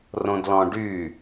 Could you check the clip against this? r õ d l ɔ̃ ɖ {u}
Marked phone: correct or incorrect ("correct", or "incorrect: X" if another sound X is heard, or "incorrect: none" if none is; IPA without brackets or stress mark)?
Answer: incorrect: y